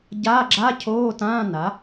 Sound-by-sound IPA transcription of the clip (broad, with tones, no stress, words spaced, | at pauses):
ɟaː˧˥˧ɡ͡ǁa˧˥˧cʰoː˧˥˧tãː˧˥˧ na˩˥